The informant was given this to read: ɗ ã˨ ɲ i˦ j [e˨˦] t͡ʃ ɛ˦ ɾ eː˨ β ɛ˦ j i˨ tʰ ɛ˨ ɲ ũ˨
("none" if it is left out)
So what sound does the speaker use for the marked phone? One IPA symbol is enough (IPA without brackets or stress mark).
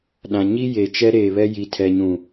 e˨